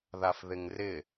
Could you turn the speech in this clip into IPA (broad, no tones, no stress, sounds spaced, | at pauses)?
ð a f ð ɪ ŋ r ɪ